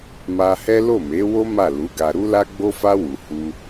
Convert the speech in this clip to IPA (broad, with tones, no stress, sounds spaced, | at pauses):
m a˧ h ɛ˦ l o˦˨ m e˨˦ w o˦ m a˦˨ l u˨˦ ɡ a˧ ɾ u˦ l a˦ ɡ͡b o˦ f a˦ w u˧ h u˦